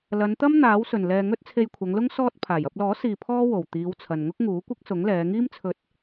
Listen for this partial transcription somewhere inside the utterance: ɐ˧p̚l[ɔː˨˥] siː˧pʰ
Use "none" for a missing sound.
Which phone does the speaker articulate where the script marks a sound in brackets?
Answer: ɔː˨˥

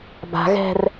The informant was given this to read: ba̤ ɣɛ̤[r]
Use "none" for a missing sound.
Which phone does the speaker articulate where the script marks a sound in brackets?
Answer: r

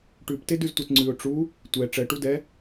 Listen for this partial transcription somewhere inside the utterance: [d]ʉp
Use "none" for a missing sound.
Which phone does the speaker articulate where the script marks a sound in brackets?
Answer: ʈ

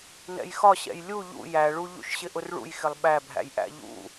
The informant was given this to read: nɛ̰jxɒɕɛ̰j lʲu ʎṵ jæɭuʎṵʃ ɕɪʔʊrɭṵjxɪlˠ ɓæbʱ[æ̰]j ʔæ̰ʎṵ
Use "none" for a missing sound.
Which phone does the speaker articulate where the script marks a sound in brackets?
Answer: æ̰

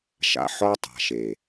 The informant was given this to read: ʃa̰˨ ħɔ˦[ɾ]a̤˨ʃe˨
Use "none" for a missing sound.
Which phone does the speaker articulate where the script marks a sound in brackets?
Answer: tˤ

